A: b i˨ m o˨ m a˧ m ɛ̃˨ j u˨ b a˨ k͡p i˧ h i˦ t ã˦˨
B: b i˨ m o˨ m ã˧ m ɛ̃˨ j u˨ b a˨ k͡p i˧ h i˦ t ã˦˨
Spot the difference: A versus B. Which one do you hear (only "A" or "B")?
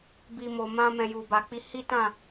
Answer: B